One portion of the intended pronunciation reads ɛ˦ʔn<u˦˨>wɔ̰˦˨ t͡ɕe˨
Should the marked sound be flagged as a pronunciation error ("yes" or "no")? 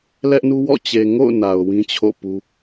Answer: yes